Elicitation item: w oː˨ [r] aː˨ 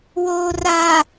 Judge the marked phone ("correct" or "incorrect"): correct